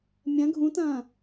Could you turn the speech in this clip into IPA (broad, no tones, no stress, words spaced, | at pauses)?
mʲɐ̃ ɡʱũtɐ̃ː